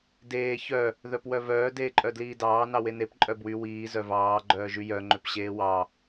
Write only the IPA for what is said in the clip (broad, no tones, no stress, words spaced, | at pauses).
deː çœ | ðœpwœvœː deːǃʼœdliːdɑː nɑwenep ǃʼœbwy wiː zœvɑː ɡ͡ǃœːʒyjœ ŋ͡ǃøpɕeːwɑ